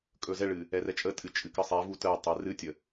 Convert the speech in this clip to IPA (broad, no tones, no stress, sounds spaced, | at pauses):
kʼ ɵ z ɛ ɭ ɨ | ɛ r ɛ t͡ʃʼ ə tʼ ɨ t͡ʃʼ ɨ k ə sˤ ɛ v u t ə tˤ ɛ r ɨ tʲ ə